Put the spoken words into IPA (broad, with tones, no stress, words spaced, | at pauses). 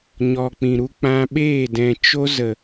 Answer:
ɲɔ˨k͡pĩ˨ɾu˧ k͡pã˧ɓeː˦˨dɛ̃˨ t͡ʃo˧zə˨